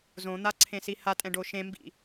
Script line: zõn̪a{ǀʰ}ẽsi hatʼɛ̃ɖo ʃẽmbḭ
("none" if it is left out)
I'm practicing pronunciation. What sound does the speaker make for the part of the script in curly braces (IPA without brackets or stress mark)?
ǀʰ